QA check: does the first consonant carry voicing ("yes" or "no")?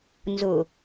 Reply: yes